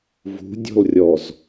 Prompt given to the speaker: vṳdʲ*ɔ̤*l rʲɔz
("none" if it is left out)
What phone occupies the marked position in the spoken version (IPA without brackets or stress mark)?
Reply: ɔ̤